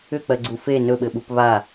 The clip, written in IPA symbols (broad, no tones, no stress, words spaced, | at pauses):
ʏk͡pɜɡ͡ǀu fe nɵɓɘɓup βa